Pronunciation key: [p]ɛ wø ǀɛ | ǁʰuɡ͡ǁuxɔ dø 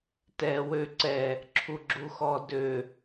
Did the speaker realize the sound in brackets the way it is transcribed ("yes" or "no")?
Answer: no